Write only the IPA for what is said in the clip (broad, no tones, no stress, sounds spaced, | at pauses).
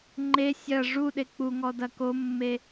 ŋ͡ǃ e sʲ ɐ ʐ u ɗ e k͡p u ŋ ɔ d ɐ k o mː e